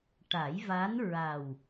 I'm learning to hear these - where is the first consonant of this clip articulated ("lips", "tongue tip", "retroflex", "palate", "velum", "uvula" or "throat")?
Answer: retroflex